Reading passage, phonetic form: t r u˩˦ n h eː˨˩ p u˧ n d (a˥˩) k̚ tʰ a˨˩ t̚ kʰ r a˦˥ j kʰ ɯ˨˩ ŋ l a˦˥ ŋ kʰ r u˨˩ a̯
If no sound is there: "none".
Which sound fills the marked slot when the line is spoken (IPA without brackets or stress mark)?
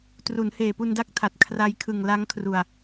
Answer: a˥˩